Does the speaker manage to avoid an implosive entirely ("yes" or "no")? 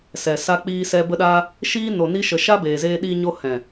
no